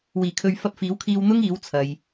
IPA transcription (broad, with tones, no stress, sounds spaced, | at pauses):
w iː˨˩ kʰ ɵ˨ ɥ f ɐ˧ p̚ f iː˨˥ w kʰ iː˧ w n̪ ʊ˥ ŋ iː˨˥ w t͡sʰ ɐ˨ j